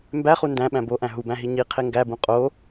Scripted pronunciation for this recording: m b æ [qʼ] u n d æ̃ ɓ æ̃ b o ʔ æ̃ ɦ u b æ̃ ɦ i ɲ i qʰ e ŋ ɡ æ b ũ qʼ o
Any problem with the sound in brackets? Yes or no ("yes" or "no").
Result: yes